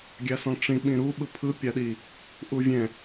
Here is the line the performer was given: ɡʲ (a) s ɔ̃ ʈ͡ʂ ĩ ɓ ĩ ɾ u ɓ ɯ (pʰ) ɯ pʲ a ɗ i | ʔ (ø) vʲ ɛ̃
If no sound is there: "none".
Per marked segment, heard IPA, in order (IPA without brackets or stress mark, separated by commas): a, pʰ, u